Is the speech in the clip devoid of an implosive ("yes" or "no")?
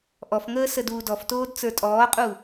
yes